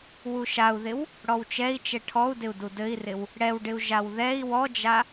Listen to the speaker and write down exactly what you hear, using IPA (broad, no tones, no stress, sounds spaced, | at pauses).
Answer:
w u ʃ a u̯ ð ɪ w | ɽ ɔ w t͡ʃ ɛ i̯ t͡ʃ ɛ ʈʰ ɔ u̯ d ɪ u̯ d u d ɘ i̯ r ɪ w | ɽ ɛ w ɖ ɪ u̯ ʒ a w ð ɛ i̯ w ɔ d͡ʒ a